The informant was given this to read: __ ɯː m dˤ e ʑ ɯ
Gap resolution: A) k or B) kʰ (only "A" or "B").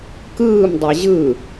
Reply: A